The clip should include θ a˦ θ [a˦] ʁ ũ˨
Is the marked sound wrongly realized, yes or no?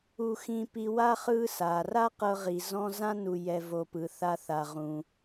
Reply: yes